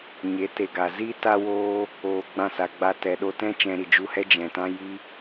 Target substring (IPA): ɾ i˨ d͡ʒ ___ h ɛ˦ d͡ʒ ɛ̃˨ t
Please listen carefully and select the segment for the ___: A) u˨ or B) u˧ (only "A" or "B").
B